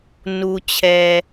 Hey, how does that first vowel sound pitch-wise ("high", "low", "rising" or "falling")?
low